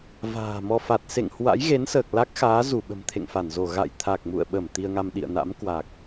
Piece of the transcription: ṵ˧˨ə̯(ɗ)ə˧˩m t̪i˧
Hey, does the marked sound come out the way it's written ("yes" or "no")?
no